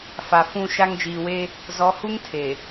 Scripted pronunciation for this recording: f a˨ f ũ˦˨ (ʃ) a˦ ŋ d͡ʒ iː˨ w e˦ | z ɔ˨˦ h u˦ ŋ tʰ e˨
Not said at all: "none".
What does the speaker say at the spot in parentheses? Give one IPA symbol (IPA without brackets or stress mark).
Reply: ʃ